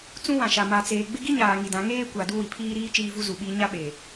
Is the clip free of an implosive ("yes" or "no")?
no